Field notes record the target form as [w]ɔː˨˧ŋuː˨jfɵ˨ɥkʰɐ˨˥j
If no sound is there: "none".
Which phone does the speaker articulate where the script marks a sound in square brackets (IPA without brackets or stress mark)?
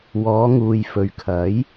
w